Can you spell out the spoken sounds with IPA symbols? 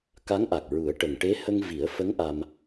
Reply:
k a˧˥ ŋ ʔ a˨˩ k̚ ɹ u˨˩˦ ə̯ ʈ ə˨˩ ŋ ʈ e˧˥ h ə˧ ŋ v i˨˩˦ ə̯ f ə˧˥ ŋ ʔ a˧ m

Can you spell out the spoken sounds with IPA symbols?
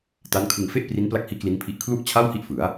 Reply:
t a˦˥ n kʰ ɯ˧ ŋ f e˥˩ ʔ p r i˦˥ n p l a˦˥ k̚ h iː˦˥ k l i˦˥ n pʰ i˦˥ ʔ kʰ l u˥˩ ʔ t͡ɕʰ a˥˩ w h i˥˩ ʔ f ɯ˩˦ a̯

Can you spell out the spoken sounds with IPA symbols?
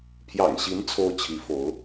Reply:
pʰ j ɑ̰˨˩ ŋ ɕ i˧˥ n t͡sʰ o˥ ʊ̯ t͡ɕʰ i˧˥ f o˧˥ ʊ̯

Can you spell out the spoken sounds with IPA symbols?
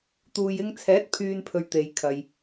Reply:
t̪ uː˨ j ɪ˧ ŋ t͡sʰ ɛː˨˥ t̚ pʰ yː˨ n pʰ ɵ˧ ɥ t̪ e˨˧ j kʰ ɐ˧ j

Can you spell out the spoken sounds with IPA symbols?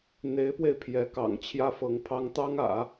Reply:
n̪ e˧˥ ɪ̯ p w e˧ ɪ̯ pʰ j ɛ˧˥ k ɑ̰˨˩ ŋ t͡ɕʰ j ä˥ f ɤ˧˥ ŋ pʰ ɑ˥ ŋ t̪ ɑ˥ ŋ ä̰˨˩˦

